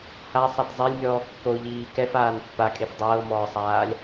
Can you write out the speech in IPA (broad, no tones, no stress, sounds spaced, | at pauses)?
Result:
h a sˤ a t zˤ e lʲ mʲ ɔː kː o ʎ iː k ɛ f aː n pː a kʼ e f dˤ ɤː m ɔː sˤ aː lʲ